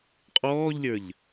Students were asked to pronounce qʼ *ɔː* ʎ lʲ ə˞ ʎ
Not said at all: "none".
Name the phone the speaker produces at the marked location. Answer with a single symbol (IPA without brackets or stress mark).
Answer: ɔː